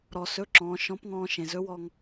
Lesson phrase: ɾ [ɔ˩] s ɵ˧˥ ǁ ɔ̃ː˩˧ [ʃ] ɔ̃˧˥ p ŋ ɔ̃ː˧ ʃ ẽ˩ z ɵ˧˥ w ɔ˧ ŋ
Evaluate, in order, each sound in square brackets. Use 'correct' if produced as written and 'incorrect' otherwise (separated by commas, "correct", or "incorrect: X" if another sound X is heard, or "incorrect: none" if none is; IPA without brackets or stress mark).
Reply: correct, correct